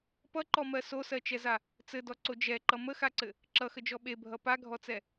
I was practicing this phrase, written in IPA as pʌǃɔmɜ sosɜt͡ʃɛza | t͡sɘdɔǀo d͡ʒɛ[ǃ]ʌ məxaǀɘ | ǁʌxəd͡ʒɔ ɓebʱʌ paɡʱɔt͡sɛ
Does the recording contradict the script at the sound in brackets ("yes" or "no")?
no